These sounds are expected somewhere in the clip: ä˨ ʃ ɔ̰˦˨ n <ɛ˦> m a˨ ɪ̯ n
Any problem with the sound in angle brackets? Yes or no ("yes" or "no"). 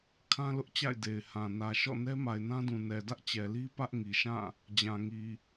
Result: no